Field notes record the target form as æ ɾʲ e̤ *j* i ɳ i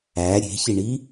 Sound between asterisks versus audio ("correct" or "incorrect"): incorrect